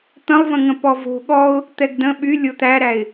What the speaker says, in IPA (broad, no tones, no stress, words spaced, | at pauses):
t̪ə̃lˠvə̃ ŋə̃pɔvo̤ ɠɔʊ̯ | t̪ɛɡdə̃ ɓy lʲot̪æɾæɪ̯